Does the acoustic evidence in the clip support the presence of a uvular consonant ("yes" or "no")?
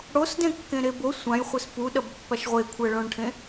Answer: yes